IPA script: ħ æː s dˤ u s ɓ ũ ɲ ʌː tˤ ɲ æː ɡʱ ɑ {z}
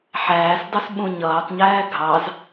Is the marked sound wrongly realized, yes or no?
no